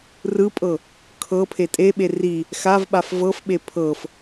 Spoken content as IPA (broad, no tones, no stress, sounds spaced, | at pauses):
r ɯ pʼ ɤ | kʰ ɤ pʰ e tʼ e ɓ e r i | x a v ɓ a f v ɤ f ɓ e pʰ ɤ f